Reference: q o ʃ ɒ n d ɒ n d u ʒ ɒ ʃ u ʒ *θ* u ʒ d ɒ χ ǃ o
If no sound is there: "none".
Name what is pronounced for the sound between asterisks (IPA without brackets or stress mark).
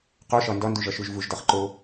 v